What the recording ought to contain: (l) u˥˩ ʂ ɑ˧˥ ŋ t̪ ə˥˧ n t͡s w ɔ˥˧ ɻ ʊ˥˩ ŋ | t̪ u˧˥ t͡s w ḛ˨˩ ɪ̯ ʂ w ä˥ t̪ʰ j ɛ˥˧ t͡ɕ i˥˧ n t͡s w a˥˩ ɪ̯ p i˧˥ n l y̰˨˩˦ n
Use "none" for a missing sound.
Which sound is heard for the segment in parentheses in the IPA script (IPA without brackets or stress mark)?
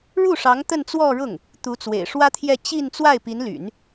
ɻ